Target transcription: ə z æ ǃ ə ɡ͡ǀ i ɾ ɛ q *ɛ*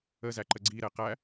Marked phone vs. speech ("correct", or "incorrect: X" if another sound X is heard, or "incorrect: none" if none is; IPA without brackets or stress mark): incorrect: æ